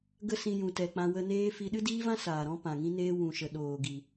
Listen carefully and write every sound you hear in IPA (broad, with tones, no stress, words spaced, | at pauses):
ɡə˦sĩ˧jũ˨tɛ˨ k͡pã˧wə˧neː˦ fi˧ɗɨ˦diː˦vã˦ saː˨ɾɔ̃˦ pã˨ŋĩ˦neː˦ wũ˨ʃə˨ ɗoː˨ɡi˨